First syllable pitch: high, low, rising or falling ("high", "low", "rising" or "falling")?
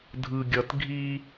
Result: low